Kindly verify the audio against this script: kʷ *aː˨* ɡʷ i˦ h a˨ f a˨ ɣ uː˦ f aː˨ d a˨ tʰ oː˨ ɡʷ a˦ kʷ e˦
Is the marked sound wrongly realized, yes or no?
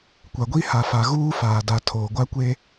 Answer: yes